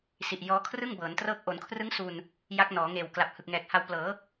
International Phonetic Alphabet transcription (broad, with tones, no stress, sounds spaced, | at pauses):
s i˨˩ ʔ j ɔː˦˥ kʰ r ɯ˥˩ ŋ b ɤː˩˦ n t r ɤː˦˥ k̚ ʔ o˩˦ n kʰ r ɯ˦˥ ŋ s u˨˩ n | j a˦˥ k̚ n ɔː˩˦ ŋ eː˨˩ w k l a˨˩ p̚ h ɯ˨˩ k̚ ŋ ɛː˨˩ k̚ h a˧ w p l ɤː˩˦